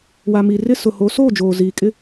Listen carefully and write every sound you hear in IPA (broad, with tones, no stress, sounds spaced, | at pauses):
w a˨ m i˨ r ɪ˦ s ʊ˨ h o˨˦ s oː˦˨ d͡ʒ oː˨ z iː˨ kʼ ɪ˦